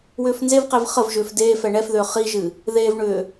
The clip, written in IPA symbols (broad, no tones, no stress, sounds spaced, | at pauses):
w ʏː f n z e v q e v χ ə v ʒ ʏː f d eː f ɛ ɳ ɛ f ð ʏː χ i ʒ ɨ | ð e v ɳ ʏː